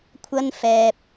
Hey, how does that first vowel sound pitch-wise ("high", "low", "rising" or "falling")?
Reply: high